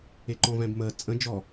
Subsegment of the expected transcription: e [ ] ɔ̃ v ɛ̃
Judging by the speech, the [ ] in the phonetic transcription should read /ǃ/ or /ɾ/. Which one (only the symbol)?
ǃ